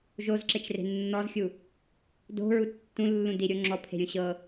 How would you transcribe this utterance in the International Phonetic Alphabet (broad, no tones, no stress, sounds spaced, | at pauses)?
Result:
ʒ o z ǁ e t͡ʃ r e̤ nː ɔ z xʲ u | d o̤ ɹ u tː ũ lː ũ d i ɾʲ o ŋ͡ǁ ɔ pʰ e̤ ɾʲ ũ ɕ ɤ